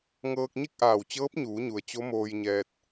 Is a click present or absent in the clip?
absent